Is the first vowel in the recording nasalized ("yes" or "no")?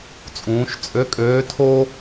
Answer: yes